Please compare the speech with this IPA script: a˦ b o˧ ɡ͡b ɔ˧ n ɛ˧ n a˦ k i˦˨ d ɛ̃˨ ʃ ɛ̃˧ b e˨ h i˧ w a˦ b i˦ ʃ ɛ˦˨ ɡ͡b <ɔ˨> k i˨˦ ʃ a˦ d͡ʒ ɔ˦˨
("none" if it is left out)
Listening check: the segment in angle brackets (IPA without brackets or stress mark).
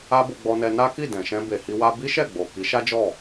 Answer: o˨